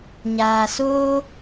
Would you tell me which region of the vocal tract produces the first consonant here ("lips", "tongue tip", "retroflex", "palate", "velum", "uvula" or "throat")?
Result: palate